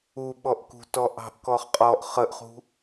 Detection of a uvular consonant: present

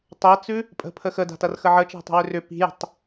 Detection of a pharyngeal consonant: present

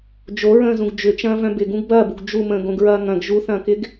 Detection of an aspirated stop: absent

